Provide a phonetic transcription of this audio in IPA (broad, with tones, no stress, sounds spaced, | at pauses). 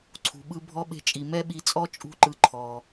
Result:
ǀʰ ṳ˩ ɓ ɯ˧ bʱ ɔ˧ ɓ e̤˧ t͡ʃʼ i˩ m ɛ˥ ɓ i˧ t͡sʼ ɔ˥ t͡ʃʼ ṳ˥ ǃ ɯ˧ ǃʰ ɔ˩